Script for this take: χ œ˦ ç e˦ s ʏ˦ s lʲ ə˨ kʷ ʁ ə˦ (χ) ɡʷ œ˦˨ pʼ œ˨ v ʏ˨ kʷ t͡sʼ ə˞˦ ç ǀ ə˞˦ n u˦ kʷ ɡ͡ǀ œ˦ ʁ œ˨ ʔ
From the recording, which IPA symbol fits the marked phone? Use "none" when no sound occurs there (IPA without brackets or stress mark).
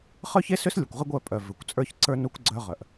none